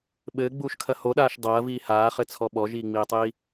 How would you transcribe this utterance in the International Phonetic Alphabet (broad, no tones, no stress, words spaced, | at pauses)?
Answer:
ɓɘːɡ͡buːʃkʰɐ hoɗaːʃ dˤɐːviː haːχɘt͡sʰɔ ɓɔʒiːŋ͡miːtˤiː